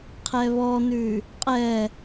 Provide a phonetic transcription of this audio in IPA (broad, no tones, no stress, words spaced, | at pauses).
qʰɛβɔnʉ | qʼɛ